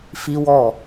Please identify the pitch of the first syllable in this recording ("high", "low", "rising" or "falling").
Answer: high